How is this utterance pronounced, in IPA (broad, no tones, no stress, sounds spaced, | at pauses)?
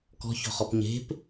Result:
k ɔ̤ ç ɔ̤ χ ɔ p ɲ e̤ p